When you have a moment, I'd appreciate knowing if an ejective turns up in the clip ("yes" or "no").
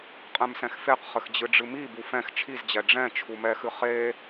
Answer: yes